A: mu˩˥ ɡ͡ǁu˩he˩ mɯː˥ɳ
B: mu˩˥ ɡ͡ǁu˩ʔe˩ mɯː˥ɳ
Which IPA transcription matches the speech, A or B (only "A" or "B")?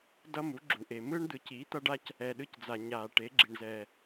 B